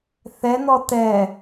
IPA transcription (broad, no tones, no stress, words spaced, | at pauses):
θɛnɔ tɛ